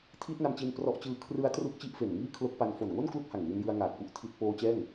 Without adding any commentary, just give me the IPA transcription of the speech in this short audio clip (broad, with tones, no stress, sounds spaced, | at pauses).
tʰ iː˦˥ t̚ n a˧ m t͡ɕ i˧ n p r ɔ˦˥ ʔ t͡ɕ ɯː˦˥ kʰ r ɯ˦˥ a̯ t r u˦˥ k̚ t͡ɕ i˦˥ ʔ f e˨˩ n ŋ iː˥˩ kʰ l o˦˥ k̚ p a˧ n f o˨˩ n ŋ o˥˩ n k l u˥˩ k̚ h a˨˩ ŋ w i˧ n j ɯ˧ a̯ ŋ aː˨˩ k̚ p u˦˥ ʔ tʰ i˦˥ t̚ p oː˦˥ t͡ɕ ɛː˥˩ ŋ